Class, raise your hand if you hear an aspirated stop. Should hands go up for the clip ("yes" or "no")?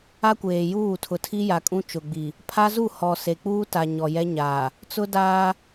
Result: yes